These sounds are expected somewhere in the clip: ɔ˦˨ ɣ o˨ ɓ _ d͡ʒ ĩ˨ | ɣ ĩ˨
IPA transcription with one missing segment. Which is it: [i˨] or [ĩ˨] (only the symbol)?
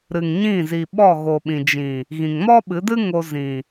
ĩ˨